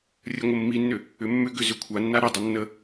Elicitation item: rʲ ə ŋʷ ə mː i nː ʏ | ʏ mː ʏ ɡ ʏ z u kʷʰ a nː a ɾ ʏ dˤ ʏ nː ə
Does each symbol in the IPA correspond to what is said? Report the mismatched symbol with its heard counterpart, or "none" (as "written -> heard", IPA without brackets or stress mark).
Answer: u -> ʏ